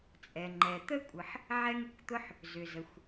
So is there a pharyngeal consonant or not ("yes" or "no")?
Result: yes